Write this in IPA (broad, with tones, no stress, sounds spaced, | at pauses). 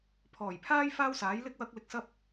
pʰ ɔː˨˩ j pʰ aː˥ j f aː˥ w s aː˨˥ j l ɪ˥ k̚ w ɐ˥ k̚ l ɪ˧ k̚ s ɐ˥ p̚